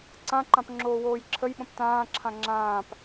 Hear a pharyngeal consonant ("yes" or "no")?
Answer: no